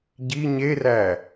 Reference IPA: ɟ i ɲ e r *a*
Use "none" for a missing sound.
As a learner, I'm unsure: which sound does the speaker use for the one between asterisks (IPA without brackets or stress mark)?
æ